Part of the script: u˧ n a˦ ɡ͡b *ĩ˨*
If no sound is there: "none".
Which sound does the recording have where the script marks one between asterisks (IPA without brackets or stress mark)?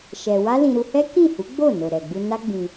ĩ˧